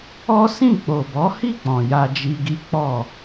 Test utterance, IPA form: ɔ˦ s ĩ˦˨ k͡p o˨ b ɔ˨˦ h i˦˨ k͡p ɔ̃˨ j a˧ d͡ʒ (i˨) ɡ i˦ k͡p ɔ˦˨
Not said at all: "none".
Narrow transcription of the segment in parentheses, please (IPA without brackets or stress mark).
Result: i˧